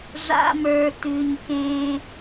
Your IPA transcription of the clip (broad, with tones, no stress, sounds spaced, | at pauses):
ʐ a̰˧ m ə˞˨ t ʉ˨ ɲ k ẽ˧